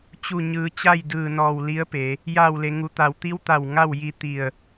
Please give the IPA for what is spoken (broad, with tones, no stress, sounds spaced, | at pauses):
t͡ɕ u˧˩ ɲ ɯː˩˧ t͡ɕ a˥˨ j d ɯː˧˩ n ɔː˧˩ w l i˧˥ ə̯ p e˩˧ | j aː˧˩ w l e˩ ŋ u˩˧ t̪ a˩ w t̪ i˧˥ w t̪ a˧˩ w ŋ a˥˨ w j i˧ t̪ i˧˩ ə̯